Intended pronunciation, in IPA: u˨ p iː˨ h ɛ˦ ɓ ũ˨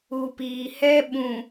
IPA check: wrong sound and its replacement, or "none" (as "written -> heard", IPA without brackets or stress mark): none